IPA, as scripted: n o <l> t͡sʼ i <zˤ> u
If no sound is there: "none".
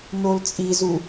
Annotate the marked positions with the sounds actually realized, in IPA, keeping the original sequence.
l, z

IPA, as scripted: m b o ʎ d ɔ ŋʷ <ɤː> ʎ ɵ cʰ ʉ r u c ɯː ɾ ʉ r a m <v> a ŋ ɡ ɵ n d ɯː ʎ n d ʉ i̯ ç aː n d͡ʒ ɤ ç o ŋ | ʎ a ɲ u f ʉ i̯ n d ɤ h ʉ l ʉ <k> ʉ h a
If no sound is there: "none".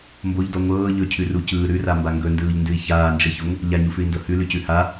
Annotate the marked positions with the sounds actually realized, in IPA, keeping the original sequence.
ɤː, b, c

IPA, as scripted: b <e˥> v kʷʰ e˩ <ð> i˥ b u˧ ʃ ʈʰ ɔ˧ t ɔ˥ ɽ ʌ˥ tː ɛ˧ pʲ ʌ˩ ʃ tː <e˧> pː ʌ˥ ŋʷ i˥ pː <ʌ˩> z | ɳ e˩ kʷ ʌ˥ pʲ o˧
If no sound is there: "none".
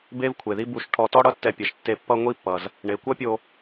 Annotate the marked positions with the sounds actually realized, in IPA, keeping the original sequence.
e˥, ð, e˧, ʌ˩

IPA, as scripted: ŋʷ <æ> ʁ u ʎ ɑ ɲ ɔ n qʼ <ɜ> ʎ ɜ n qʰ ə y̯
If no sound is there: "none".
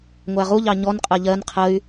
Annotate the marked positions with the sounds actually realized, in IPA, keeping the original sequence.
æ, ɜ

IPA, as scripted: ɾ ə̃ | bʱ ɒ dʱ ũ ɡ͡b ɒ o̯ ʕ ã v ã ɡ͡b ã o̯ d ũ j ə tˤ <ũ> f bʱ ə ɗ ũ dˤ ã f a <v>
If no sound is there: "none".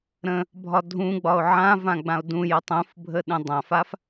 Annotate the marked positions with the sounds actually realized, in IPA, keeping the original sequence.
ũ, f

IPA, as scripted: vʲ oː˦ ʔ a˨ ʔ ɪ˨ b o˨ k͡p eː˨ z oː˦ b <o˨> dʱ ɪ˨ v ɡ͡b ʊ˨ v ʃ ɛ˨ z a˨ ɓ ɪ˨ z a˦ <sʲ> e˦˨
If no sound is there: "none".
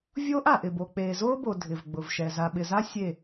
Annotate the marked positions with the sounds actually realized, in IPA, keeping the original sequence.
o˨, sʲ

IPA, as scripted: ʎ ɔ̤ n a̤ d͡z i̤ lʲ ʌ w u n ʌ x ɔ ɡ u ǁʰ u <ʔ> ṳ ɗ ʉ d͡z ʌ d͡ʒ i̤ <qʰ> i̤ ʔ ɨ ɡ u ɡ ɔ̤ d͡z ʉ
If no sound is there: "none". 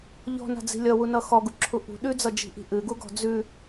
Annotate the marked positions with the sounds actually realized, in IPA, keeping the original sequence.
ʔ, ʔ

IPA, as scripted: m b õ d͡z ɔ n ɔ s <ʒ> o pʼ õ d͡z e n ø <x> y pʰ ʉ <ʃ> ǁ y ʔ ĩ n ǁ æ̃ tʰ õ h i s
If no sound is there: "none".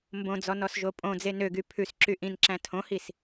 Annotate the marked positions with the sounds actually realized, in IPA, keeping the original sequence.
ʒ, ɡ, s

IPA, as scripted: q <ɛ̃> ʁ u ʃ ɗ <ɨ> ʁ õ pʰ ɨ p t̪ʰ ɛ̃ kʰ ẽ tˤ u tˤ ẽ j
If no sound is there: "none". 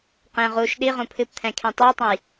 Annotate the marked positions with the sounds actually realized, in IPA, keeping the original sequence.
ẽ, i

